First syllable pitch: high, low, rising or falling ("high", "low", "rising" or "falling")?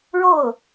falling